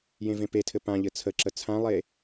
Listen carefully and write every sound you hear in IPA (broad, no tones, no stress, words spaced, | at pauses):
jẽvẽpetʰɘ pãʎɘ t͡sʰəǁə t͡sʰãlˠe